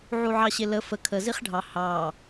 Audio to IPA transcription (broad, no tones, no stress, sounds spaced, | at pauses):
ʕ u ʕ ɑ ɕ ɪ l ə f ə kʰ ə z i χ ɖʱ ɑ h ɑ